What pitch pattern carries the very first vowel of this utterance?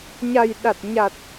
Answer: low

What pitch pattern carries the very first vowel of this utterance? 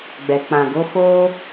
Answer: low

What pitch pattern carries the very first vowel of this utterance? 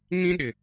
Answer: high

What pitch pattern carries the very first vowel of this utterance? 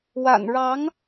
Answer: low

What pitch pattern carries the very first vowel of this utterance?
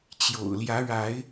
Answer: low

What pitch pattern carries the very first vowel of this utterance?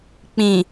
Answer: low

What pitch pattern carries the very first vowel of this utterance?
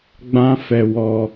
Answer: high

